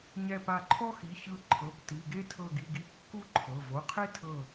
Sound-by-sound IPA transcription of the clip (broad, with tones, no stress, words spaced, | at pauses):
ɲɛ˧˩pa˧˩ǃʰɔ˦xi˩˧˩ çɯ˧˩ ǃʰɤ˩˧˩p ti˩˧˩ɡe˦ tʰɤ˧˩ɡi˩˧˩ɡi˧˩ kːu˦ǃʰɤ˩˧˩ vo˩˧˩qʰe˦tʰɤ˧˩